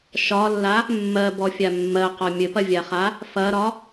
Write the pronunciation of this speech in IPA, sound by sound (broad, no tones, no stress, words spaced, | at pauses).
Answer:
ʃɒlːa | mːɜbɔfʲa mːɜqɒ mʲɘpɐvʲaχa | fɐɾɒ